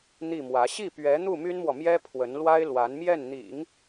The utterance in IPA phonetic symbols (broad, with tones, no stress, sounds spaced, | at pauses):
n̪ i˥˩ m w ä˧˥ ɕ i˥˩ p ɥ ɛ˧˥ n̪ u˥˩ m y˥ n m w ɔ˨ m j ɛ˥ pʰ w ə˧˥ n l w a˥ ɪ̯ l w a˧˥ n m j ɛ˥˩ n n̪ ḭ˨˩˦ ŋ